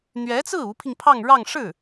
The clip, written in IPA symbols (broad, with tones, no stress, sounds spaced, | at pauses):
n̪ ɥ ɛ˧˥ t͡s ɹ̩˥˩ u˧˥ pʰ i˧ ŋ pʰ ɑ˥˧ ŋ ɻ ɑ˥˧ ŋ ʂ ɻ̩˥˩